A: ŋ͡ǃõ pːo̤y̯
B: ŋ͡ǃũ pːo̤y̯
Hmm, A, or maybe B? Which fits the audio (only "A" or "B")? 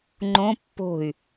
A